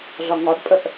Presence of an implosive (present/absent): absent